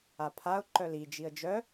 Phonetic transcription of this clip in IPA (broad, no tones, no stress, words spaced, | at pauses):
apʰaʊ̯ ǃœli d͡ʒiə̯d͡ʒœ